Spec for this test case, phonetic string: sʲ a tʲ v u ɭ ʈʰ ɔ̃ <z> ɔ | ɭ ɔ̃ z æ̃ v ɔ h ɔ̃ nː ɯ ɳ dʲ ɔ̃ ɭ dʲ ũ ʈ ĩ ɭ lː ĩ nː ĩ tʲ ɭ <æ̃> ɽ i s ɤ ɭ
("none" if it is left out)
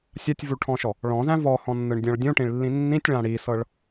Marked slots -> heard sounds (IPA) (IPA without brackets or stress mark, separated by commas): ʃ, ã